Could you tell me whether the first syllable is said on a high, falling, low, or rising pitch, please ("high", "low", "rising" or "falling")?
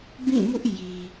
falling